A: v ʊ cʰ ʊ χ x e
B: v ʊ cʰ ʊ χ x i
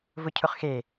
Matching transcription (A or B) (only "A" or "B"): A